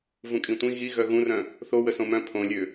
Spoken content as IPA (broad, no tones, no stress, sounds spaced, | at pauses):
v ũ kʼ ĩ tʷ ĩ ɣ i ɣ œ ɣ ũ r œ̃ | θ o w ə s õ m œ̃ pʰ õ lʲ ø